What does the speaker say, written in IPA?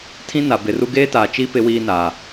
tʰĩ˦na˨bɪ˨ru˦ ɡeː˦taː˨t͡ʃi˦ pɪ˦wiː˦naː˨

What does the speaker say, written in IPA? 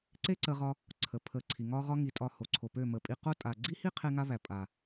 ǀe˦ǀə˧ʁɒ˧ | ǀʰə˧pʰə˦˨ǀʰi˧ ŋɒ˦ʁɒ˦ ŋi˧tʼɒ˦˨ ho˨ǀʰo˨pø˦˨ mə˨pʼi˧qo˦ tʼa˨ɡ͡ǀi˦hi˦ qʰe˦ŋa˦βæ˨ pʼa˨

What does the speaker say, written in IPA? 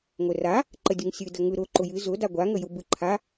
ŋʷɘra | ǃədʲɯŋsʲɨ dəŋɯ ɾʊ ǃʊjɨ zʊ daɡʷa ŋəjʊbɯǃʰa

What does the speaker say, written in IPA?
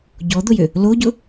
ɟɔd̪ʊjʏ | loɟʊ

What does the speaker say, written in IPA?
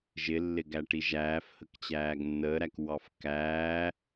ʒɪlːɪɡæʈi ʒæːfhəkt͡ɕæːɡ nːəːɾækwɑf kæː

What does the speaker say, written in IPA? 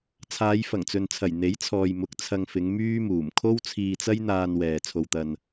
t͡sʰaː˨˧jfɐ˨˩ŋt͡sɵ˨nt͡sʰɐ˨˩j n̪e˨˥jt͡sʰɔː˨j mʊ˨˥k̚t͡sʰɐ˧ŋfɪ˨˧ŋ myː˥muː˨˩m kʰo˥wt͡sʰiː˧t͡sɐ˥jn̪aː˧n wɛː˨t͡sʰo˧wt̪ɐ˧n

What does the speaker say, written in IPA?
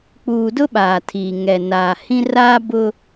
k͡puː˨dʊ˦ ɓaː˨tʰiː˨ ŋɛ˨naː˨ hĩ˦ raː˦bʊ˦

